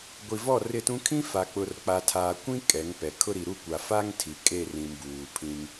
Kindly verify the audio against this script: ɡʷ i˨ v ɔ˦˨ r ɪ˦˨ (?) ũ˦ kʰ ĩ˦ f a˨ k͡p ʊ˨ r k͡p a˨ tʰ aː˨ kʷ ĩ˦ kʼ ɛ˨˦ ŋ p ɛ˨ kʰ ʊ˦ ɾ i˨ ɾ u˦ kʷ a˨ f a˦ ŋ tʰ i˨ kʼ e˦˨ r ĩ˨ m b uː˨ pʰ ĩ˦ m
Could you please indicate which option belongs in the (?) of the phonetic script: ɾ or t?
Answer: t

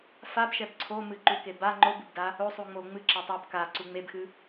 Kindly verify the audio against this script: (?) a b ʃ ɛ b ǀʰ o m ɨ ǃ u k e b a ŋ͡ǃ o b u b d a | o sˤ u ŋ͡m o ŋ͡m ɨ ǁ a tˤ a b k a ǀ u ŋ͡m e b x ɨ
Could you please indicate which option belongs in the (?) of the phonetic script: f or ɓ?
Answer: f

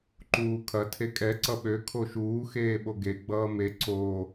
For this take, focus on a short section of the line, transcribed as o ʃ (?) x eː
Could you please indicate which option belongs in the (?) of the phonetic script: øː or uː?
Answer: uː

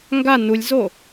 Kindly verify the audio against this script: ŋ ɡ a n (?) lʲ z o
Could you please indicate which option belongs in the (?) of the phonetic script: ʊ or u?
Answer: u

